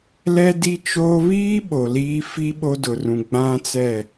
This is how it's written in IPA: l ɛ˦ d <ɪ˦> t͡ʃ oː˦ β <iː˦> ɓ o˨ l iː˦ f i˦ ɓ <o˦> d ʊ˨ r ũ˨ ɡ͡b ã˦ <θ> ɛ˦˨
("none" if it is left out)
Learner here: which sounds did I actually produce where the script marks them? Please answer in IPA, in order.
i˦, iː˦, o˦, t͡s

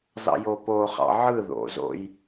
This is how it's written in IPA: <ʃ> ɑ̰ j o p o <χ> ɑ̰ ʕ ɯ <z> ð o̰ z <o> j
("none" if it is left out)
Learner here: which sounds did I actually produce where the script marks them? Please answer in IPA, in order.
z, χ, none, o̰

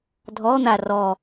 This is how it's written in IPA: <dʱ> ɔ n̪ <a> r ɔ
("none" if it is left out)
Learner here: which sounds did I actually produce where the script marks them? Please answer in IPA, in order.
dʱ, a

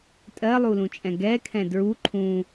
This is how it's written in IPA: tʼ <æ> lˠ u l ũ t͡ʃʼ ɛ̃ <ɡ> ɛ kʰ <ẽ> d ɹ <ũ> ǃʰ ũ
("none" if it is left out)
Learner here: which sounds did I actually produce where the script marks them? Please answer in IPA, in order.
ɜ, ɡ, ɛ̃, u

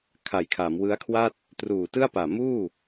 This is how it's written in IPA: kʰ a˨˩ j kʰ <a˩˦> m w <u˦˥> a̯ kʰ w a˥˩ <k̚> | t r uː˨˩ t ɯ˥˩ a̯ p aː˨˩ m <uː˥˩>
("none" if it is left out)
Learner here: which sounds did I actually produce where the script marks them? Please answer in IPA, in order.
a˩˦, ɯ˦˥, t̚, uː˥˩

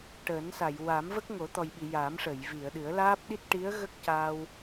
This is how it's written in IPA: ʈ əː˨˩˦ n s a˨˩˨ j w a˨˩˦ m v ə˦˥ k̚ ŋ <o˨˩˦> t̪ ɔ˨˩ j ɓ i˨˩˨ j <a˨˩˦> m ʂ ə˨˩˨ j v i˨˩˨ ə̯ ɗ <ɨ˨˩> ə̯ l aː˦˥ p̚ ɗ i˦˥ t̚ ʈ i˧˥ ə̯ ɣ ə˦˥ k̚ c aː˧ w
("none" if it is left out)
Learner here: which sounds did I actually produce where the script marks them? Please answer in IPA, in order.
o˨˩˦, a˨˩˦, ɨ˨˩˦

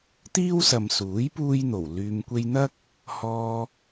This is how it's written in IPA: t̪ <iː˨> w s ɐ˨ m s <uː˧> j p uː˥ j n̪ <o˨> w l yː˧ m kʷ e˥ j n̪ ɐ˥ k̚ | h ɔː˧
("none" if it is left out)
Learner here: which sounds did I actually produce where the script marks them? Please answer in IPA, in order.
iː˥, uː˨˥, o˨˩

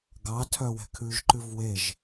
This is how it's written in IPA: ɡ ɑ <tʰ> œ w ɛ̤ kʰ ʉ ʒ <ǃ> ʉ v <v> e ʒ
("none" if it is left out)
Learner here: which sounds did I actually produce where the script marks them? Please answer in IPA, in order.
tʰ, ǃ, w

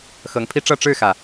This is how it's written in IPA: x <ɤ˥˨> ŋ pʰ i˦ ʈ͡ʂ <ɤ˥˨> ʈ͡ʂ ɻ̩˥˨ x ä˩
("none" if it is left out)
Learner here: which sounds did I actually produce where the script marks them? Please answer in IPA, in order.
ɤ˨˦, ɤ˥˨

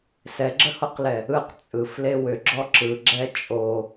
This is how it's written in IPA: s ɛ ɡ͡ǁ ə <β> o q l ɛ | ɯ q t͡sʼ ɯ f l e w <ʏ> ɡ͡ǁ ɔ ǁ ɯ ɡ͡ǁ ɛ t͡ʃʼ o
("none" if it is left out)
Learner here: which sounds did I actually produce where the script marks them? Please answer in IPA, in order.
h, ʏ

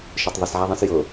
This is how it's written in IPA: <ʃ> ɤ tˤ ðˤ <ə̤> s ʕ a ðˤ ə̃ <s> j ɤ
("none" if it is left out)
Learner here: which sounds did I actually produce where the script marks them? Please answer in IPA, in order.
ʃ, ə, s

